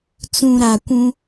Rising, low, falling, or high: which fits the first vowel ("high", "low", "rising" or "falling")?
low